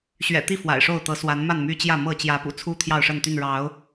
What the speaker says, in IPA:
ɕ ɥ ɛ̰˨˩ t̪ i˥˨ f w a̰˨˩ ɪ̯ ʂ o˥˨ ʊ̯ t̪ ɤ˨˦ s w a˨˦ n m a˥˨ n m y˦ t͡ɕ j ä˥˨ m ɤ˥˨ t͡ɕ j ä˨˦ p ṵ˨˩ t͡sʰ u˦ t̪ʰ j ɑ˥˨ ʊ̯ ʂ ə˥˨ n t̪ y˥˨ n ɻ ɑ˨˦ ʊ̯

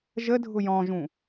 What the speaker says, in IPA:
ʒ ə dʱ ʊ j ɔ̃ ʒ ũ

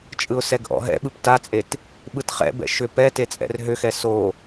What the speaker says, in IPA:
t͡ʃʼ ɯ ʊ̯ s ɛ ɡ ʔ ɔ̰ ɦ ɛ̰ ɓ ɯ p t a t͡sʼ e t | ɓ ɯ t χ ɛ̰ b ɛ̰ ʃ ʏ p ɛ t e t͡sʼ ɛ̰ r ɦ ʏ x ɛ s o

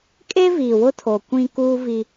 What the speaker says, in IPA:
kʼ e˦ v iː˨ w ʊ˦ tʰ o˨ kʷ ĩ˦ k uː˦ v i˦

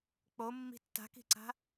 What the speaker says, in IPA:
k͡p o mː i̤ tː a̤ k i̤ ǀ a̤

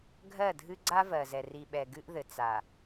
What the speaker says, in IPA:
ɡʱ ɜ˦˨ dʱ ɨ˦ ɡ͡ǀ a˦ v ɜ˨ z ɛ˨ r i˨ ɓ ɛ˨ ɡ ɨ˦ ʔ ð ɘ˨ t͡s a˨

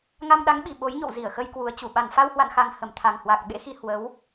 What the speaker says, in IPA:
ŋ a˧ m ɗ a˨˦ ŋ ɓ i˨˩ ɓ o˨˦ j ɲ o̰˧˨ w z i˧˩ ə̯ x ə˧ j k w u˨˦ ə̯ t͡ɕ u˧˩ ɓ a˧˩ n f a˧ w h w a̰˧˨ n x a˨˩ ŋ h ə˧˩ m t̪ʰ a˨˩ ŋ h w a˨˩ k̚ ɓ ḛ˧˥ x i˧ h w ə˨˦ w

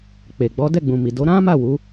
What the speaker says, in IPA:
k͡p e˨ ɡ͡b ɔ˨˦ d ɛ˦˨ ɡ͡b ũ˨ m i˨ d o˨˦ ɾ ã˦ m a˦˨ w u˨˦

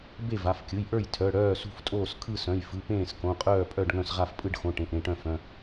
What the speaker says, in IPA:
b e˥˨ v a˩˧˩ f kʲ ɯ˩˧˩ j ʔ ə˞˥˨ j tʰ œ˩˧˩ ɽ œː˥˨ s ṳ˥˨ f tʼ oː˥˨ s kʰ ɯ˥˨ s œ̃˩˧˩ j f ɯ˩˧˩ p ẽː˥˨ s k õ˩˧˩ qʼ œː˥˨ pʼ œ˥˨ ɖ ŋ œ̃˥˨ s ʁ a˥˨ f pʼ ɯ˥˨ ɖ x õ˩˧˩ ʈ ẽ˩˧˩ ʔ ɾ ẽ˥˨ ʈ œ̃˥˨ f œ̃˩˧˩

